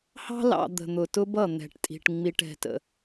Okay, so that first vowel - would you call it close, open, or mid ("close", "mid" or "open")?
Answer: open